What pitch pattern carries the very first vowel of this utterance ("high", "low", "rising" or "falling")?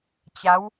rising